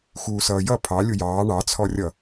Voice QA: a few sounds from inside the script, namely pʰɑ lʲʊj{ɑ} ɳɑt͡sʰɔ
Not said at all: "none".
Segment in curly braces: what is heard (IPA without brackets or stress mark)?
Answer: ɑː